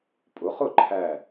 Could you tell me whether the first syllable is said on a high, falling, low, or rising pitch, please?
rising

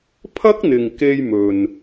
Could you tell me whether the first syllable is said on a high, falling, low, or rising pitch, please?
high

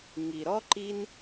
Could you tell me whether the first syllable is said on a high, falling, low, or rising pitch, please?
low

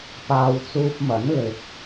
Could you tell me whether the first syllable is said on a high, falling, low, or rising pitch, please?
low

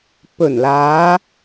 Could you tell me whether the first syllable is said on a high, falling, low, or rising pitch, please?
low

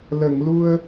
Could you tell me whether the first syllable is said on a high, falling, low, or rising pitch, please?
low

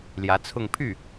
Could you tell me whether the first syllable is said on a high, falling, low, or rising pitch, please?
rising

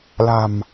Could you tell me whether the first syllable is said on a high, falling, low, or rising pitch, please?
low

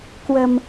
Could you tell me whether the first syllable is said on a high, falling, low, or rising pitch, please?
low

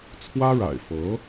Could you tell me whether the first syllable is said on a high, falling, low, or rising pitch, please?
high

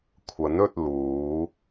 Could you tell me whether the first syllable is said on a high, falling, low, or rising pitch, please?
rising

